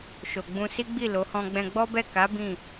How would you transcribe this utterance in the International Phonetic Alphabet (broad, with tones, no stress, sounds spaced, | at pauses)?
ʃ o˨ ɡ͡b ũ˧ s i˦ ɡ͡b i˦˨ l o˨˦ h ɔ̃˧ ɡ͡b ɛ̃˧ ɡ͡b ɔ˦ b ɛ˦˨ k a˨˦ b ĩ˦˨